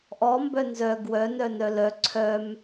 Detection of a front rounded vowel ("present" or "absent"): present